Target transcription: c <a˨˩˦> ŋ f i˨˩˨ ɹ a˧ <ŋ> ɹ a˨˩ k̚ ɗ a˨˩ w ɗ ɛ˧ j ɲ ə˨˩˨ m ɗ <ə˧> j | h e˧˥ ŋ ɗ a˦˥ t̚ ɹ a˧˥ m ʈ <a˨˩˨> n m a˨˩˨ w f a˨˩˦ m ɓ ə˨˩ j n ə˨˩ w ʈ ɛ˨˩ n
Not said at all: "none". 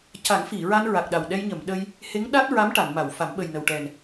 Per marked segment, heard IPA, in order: a˨˩˦, n, ə˧, a˨˩˨

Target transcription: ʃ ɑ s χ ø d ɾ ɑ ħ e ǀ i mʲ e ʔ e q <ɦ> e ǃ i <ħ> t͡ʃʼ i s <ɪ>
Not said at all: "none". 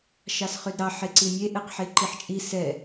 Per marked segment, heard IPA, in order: ħ, ħ, ɛ

